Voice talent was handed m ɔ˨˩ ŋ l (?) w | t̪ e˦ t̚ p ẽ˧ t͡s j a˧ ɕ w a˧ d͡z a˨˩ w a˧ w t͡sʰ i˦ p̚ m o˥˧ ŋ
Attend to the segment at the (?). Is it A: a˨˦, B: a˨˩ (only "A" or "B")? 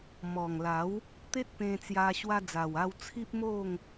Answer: A